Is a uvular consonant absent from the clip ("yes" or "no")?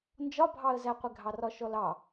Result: no